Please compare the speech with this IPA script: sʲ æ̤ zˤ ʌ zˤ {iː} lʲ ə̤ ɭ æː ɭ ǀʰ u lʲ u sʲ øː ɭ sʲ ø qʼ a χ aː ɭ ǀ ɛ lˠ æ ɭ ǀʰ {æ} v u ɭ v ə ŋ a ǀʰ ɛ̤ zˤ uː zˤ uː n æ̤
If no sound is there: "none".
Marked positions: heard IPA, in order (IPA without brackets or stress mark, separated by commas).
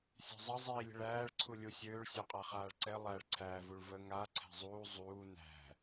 iː, æː